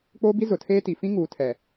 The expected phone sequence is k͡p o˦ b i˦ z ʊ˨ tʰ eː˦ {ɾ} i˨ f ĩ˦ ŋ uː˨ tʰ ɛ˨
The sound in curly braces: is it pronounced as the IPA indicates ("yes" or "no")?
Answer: no